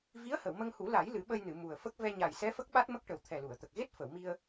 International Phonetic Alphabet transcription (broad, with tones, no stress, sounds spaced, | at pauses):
v i˧˥ ə̯ h ə˨˩˨ w m ə˧ ŋ h u˨˩˦ l a˨˩˦ j l ɨ˨˩˦ ɓ ə˧ j n ɨ˨˩˨ m u˨˩ ə̯ f ə˦˥ k̚ v ɛ˧ ɲ a˨˩ j s ɛ˧˥ f ə˦˥ k̚ ɓ a˦˥ t̚ m ə˦˥ k̚ ʈ ə˨˩ w t̪ʰ ɛ˨˩ l u˨˩˨ ə̯ t̪ ə˨˩ k̚ ɣ e˦˥ t̚ f ə˨˩˨ w m i˧ ə̯